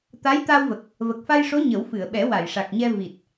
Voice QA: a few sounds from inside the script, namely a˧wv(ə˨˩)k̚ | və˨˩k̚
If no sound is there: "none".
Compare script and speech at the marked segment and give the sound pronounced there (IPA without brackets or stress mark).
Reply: ə˨˩